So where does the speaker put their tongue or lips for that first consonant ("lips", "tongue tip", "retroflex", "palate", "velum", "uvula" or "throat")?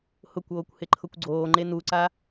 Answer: throat